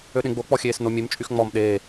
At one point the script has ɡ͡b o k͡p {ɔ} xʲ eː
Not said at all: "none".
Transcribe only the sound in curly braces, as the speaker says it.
ɔ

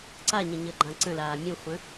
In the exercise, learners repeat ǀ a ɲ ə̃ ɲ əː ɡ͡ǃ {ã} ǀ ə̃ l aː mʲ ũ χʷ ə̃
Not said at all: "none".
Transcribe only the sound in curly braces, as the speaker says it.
ã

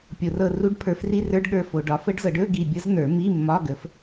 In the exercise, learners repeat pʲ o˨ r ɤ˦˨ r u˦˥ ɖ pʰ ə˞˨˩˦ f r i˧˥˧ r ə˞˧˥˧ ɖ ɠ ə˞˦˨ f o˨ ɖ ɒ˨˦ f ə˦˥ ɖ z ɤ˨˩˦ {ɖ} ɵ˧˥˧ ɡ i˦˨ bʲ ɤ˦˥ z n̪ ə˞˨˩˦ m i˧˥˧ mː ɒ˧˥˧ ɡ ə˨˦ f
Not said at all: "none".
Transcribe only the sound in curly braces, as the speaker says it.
ɖ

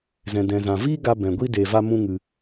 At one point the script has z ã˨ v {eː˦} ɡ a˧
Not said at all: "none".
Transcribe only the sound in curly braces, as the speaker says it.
iː˦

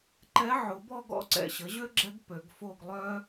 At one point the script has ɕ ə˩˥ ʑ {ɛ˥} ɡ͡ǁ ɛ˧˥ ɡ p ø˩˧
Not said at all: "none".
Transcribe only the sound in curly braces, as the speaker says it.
ø˥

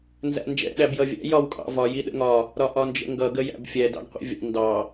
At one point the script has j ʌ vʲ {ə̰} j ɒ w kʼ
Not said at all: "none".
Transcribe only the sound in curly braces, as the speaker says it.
æ̰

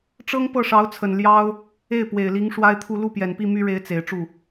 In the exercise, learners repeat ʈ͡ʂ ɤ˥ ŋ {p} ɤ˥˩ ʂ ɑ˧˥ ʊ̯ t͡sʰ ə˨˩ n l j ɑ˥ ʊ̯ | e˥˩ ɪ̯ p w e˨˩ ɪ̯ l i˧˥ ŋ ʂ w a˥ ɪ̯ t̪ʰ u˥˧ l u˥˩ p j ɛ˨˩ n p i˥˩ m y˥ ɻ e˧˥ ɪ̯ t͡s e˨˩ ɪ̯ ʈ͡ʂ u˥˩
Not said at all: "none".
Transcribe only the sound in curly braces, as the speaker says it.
p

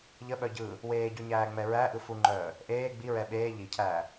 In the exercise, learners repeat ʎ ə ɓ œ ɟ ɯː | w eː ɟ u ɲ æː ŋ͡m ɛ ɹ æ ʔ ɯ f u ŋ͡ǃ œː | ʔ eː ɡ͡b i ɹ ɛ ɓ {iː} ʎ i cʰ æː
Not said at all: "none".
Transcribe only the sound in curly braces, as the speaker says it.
eː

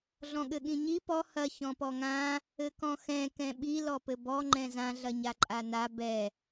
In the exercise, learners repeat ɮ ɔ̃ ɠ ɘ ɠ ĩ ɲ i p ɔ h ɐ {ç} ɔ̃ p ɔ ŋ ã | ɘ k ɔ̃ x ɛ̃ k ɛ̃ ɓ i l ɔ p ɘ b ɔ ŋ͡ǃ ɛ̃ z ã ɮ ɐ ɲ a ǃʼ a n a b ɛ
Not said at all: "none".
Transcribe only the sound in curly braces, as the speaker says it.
ç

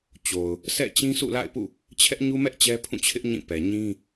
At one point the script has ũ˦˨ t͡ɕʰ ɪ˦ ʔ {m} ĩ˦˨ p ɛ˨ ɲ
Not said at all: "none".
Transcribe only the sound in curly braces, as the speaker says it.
ɲ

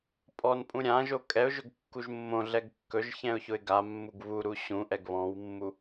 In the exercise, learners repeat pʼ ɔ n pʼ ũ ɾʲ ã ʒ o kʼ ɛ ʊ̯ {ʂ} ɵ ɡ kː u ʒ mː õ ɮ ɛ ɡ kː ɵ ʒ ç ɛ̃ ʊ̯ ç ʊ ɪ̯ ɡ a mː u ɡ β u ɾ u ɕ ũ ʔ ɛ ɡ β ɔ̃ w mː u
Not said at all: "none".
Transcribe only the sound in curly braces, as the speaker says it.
ʒ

